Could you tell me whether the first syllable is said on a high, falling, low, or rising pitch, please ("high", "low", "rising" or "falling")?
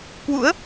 rising